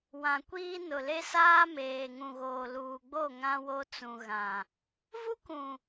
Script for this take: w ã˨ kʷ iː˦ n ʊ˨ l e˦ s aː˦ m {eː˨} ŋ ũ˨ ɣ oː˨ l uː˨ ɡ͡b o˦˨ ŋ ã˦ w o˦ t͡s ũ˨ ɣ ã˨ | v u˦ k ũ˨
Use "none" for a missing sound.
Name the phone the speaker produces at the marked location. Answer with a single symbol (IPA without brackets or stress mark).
eː˨